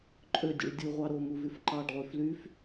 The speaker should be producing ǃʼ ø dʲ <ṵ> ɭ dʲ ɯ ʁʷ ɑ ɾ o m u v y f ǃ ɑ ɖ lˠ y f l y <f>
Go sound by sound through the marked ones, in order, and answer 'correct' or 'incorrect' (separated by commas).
correct, correct